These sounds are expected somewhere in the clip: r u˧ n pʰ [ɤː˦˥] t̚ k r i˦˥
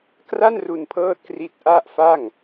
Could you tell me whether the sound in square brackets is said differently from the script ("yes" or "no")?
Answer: no